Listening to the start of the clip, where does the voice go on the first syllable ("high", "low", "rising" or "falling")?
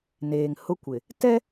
low